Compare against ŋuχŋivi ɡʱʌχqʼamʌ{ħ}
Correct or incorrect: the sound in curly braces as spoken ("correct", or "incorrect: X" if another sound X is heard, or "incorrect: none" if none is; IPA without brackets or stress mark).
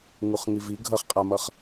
incorrect: χ